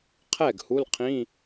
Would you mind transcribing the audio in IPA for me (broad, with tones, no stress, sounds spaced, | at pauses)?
qʰ ɛ˥˩ ɡ h u˧˥˧ l qʰ ĩ˧˥˧